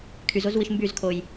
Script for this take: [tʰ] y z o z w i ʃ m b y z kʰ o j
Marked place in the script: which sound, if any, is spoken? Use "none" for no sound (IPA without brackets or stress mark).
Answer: kʰ